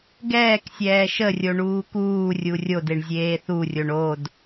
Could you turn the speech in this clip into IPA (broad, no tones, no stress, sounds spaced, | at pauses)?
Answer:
ɡ ɛː k sʲ ɛː ʃ ə rʲ o ɳ uː k uː rʲ u rʲ o d e ɳ zʲ eː θ u rʲ o ɳ o d